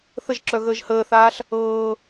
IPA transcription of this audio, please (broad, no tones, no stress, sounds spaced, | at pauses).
θ ə ʒ ǁ œ ɣ əː ʒ h əː θ aː ɬ | ɤː